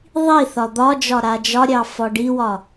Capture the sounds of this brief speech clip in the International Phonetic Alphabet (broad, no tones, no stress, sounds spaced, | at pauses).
ðˤ i θ ɒ d̪ ɒ d͡ʒ ɒ ɾ a d͡ʒ ɒ ɾʲ ɑ f ɒ ɖ i w ɒ